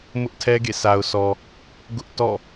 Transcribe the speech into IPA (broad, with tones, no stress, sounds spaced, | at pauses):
m ʊ˦ ʔ tʰ ɛ˦ ɡ ḛ˦˨ sʰ a˨ ʊ̯ sʰ ɔ˨ | ɡ ʊ˦ ʔ t ɔ̰˦˨